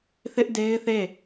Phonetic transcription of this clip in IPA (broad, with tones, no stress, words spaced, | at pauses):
θɪ˦ʔ de˦ɪ̯θe˦˨